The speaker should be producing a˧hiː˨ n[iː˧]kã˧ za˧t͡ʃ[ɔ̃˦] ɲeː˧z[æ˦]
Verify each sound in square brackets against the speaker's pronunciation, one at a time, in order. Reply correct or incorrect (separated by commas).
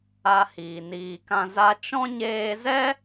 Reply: incorrect, correct, incorrect